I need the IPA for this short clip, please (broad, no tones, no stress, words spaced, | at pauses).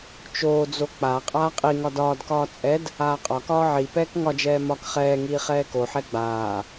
t͡ʃoːd͡zo k͡pa qʼaːqʼiŋɒ dɒːdkɒː t͡sʼɛd | aːqʼɒkɒː ʕipɛːk ŋɒd͡ʒɛː mɒk χɛːŋiː χɛːkoħɛ ɡ͡baː